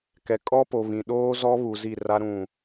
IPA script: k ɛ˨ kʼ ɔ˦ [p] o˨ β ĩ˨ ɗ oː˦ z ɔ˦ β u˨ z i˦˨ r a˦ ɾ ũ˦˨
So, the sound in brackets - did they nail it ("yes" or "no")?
yes